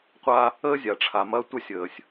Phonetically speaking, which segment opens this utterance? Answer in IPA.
qʷ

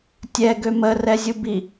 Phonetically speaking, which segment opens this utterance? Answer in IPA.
tʲ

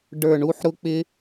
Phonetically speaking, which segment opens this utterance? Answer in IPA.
ɖ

